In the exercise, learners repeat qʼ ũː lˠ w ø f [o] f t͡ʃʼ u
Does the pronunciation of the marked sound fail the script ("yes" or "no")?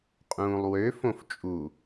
yes